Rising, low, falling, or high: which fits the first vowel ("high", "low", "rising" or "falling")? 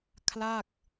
falling